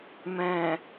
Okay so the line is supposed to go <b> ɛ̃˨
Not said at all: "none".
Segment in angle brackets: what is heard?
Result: m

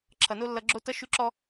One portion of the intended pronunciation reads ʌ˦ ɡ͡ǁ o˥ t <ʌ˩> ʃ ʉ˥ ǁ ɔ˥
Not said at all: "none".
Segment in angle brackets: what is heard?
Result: ʌ˥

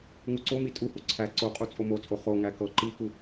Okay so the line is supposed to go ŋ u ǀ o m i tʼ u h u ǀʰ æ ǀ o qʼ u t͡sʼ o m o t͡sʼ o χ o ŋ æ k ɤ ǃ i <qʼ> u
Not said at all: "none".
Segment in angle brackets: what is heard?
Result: k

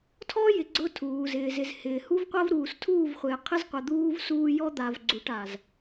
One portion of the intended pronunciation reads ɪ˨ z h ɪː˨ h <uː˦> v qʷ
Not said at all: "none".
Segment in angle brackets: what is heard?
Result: u˦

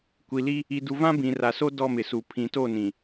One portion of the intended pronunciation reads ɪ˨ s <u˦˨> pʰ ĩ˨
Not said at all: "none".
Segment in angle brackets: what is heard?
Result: u˨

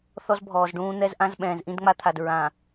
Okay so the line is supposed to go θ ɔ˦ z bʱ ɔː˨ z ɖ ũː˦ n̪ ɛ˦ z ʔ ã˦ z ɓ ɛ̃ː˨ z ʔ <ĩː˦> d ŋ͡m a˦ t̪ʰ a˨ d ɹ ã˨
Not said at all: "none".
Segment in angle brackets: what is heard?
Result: ĩ˦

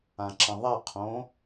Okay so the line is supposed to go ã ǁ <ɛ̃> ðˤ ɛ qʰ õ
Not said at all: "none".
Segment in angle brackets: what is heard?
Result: ə̃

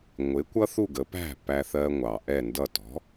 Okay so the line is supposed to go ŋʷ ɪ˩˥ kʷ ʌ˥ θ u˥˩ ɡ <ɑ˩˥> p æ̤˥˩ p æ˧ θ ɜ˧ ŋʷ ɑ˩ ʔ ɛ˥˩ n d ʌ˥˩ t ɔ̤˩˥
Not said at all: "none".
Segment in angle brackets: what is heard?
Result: ə˩˥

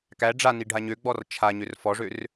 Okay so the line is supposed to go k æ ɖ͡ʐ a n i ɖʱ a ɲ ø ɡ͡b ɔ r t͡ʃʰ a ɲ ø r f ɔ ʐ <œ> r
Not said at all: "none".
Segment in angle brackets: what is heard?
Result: ø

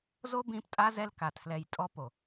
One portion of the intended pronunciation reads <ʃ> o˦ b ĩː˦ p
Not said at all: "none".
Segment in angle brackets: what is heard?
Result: z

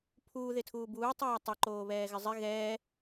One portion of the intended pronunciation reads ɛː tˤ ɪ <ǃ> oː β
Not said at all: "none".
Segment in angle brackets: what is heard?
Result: ǃ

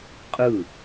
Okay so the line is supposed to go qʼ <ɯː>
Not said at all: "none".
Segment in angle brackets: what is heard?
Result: ɯ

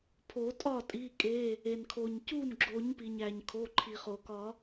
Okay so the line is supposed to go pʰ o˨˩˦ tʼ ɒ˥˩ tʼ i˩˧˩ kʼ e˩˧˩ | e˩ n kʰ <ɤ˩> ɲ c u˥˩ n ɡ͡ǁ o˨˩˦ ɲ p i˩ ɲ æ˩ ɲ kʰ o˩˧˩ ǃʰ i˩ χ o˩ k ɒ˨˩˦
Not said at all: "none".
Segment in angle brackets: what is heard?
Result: o˩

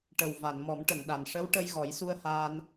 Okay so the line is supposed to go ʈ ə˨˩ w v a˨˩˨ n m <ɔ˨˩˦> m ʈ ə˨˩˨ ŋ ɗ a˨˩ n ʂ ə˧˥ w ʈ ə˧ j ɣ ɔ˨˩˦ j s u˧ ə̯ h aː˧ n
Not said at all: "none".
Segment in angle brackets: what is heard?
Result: ɔ˨˩˦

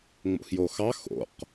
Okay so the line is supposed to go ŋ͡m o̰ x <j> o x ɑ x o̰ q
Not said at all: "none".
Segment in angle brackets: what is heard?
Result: j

